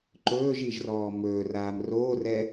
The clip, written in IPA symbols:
ǃɵːʒiʒrɔː mɵːraːm roːrɛ

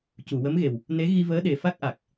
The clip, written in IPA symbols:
cu˨˩˨wə˧˥mɣe˨˩w | ne˧˥ ɣi˧vəː˧˥ɗe˨˩ fa˦˥k̚ʔa˨˩k̚

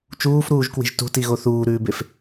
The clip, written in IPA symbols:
t͡ʃuːfɾuːʒkwi̤ʒ tṳtiɣo θuːɾʉːbef

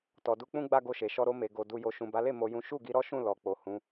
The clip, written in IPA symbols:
tɔ˨du˧k͡pũ˦ ɡ͡ba˦ɡo˧ʃe˨ʃɔ˧ ɾo˧me˨ɡo˨ du˨ jo˨ʃũ˨ba˨˦le˦˨ mo˧jũ˦ ʃu˦˨ɡi˨˦ ɾɔ˦ʃũ˦˨ lɔ˨k͡po˨ hũ˨˦

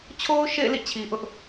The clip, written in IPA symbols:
t͡ɕʰo˦ʊ̯ʃḛ˦˨ɪ̯ lḭ˦˨ t͡ɕʰi˨ʔʊ˦ʔ

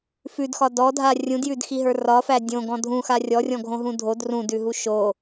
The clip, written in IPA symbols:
fʉdxɒ dɔdʱa rʲũdjʉdxiɦə˞ rɒfæ dʲõɡɔ̃ dʱũxa rʲɔrʲɔ̃ɡʱõɦũ dʱod rũdʉɦu ʃo

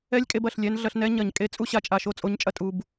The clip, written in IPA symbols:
ɛ˦lʲkʼe˧bɐ˨ɬlʲɛ˧n ɮɐ˧ɬnɛ˦ɲɐ˨ɲ kʼe˧ t͡sʼu˦ɕa˧t͡ʃʼa˨ ʃo˧t͡sʼo˨˦ɲt͡ʃʼɐ˨tʼu˨b

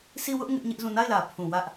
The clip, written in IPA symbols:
si˦˨wʊ˦ʔ ŋɪ˦ʔɲɪ˦ʔzũ˦˨ na˦˨ɪ̯lä˨ pʰũ˨wä˦ʔ

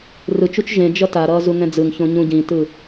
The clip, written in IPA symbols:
rɯt͡ʃut͡ʃ ʒẽd͡ʒʌ taɾʌː zuŋɛ̃d͡zɯŋçõ ɲũɟĩtɯ

